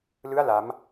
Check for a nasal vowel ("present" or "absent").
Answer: absent